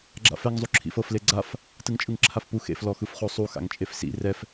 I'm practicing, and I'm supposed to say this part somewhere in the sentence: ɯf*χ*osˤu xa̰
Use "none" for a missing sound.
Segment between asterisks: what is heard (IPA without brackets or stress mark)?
χ